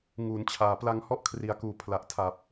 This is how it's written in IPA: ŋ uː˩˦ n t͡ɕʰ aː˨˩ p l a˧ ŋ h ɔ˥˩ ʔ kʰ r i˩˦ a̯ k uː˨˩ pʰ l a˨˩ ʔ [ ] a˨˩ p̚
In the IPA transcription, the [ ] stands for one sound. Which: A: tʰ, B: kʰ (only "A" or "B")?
A